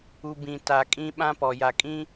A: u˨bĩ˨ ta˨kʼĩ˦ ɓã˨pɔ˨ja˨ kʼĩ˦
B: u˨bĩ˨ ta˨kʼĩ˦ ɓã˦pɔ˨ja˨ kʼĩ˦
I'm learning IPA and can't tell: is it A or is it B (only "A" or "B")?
B